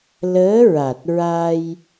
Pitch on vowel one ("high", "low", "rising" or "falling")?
rising